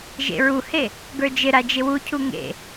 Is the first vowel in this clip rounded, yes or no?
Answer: no